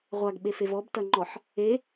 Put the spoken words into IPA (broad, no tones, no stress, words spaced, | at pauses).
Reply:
ʁʷaɡɓefev ɔbtɐŋ͡ǃɔħ | e